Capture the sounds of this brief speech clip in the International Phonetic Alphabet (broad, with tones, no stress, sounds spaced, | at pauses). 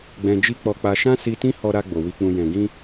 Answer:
ɡ͡b ɛ̃˧ d͡ʒ i˦ k͡p ɔ˧ k͡p a˧ ʃ ã˦ s i˧ t ĩ˦ h ɔ˧ ɾ a˧ ɡ͡b o˨ w i˨ k͡p ũ˨ j ɛ̃˨ ɡ ĩ˧